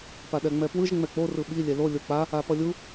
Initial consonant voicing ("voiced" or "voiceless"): voiceless